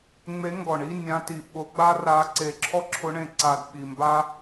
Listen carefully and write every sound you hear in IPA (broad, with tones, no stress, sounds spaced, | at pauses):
ŋ͡m e˧˥ ŋ ɡ ɔ˨˩ ɳ i˧˥˧ nʲ ã˧˥ t i˨˩ ɓ ʊ˧˥ ɡ͡b a˥ r a˧˥ ǀ e˨˩ ǁʰ ɔ˥ ǁʰ ʊ˧˥ ɳ ẽ˨˩ ǀ a˨˩ d ɓ i˨˩ m b a˥